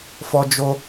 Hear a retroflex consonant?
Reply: no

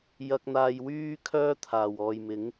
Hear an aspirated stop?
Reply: yes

